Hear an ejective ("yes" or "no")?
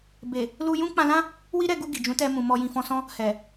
no